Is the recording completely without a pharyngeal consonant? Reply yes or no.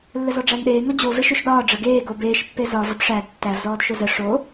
yes